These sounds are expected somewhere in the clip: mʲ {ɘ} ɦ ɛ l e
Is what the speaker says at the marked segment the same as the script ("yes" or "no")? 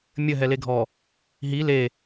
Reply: yes